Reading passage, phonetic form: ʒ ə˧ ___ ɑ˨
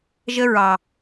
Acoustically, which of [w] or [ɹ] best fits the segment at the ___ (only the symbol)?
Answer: ɹ